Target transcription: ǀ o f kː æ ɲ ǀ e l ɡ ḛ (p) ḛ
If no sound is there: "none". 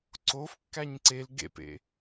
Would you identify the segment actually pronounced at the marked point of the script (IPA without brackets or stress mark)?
p